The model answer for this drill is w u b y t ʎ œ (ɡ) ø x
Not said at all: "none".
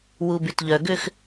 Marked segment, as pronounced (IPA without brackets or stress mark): ɡ